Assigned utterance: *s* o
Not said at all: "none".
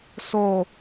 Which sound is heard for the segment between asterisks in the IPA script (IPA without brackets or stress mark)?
s